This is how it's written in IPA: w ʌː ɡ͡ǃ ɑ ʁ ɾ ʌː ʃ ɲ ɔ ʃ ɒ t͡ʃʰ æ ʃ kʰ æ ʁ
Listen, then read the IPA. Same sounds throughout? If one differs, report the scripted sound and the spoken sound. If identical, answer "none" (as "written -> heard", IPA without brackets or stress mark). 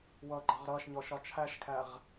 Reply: none